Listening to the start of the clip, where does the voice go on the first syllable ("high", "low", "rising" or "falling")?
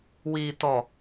low